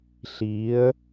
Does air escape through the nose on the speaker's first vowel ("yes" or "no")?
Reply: no